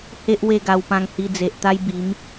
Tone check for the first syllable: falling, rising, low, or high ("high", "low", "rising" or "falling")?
high